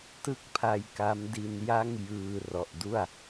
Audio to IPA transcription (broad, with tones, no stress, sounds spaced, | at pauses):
t ɯ˥˩ k̚ pʰ a˧ j k a˦˥ m d i˧ n j a˥˩ ŋ j ɯː˧ r ɔ˨˩ ʔ d u˥˩ a̯